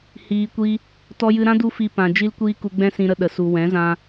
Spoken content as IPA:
h iː˧ kʷ i˦ | t ɔ˧ j ɨ˧ ɾ ã˦ d u˦ f i˧ p ã˨ d͡ʒ i˦ l kʷ iː˦ k u˧ ɡ͡b ɛ̃˦ s ĩ˧ ɾ ə˧ ɗ ə˨ s u˨ w ɛ̃˨˦ z ã˧

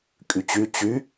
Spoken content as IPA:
kʼ y t͡ɕ y t͡ɕ y

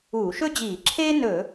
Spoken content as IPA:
uː˧˩˧ ʃ ɵ˥ d͡ʑ iː˧˩˧ ǁʰ eː˥ n ɵ˧˩˧

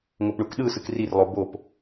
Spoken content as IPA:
ŋ o p ɳ u k ɗ ɯ s ɯ k r i r lˠ o b o p

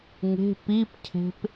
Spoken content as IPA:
ŋ e̤ p i p cʰ e̤ p

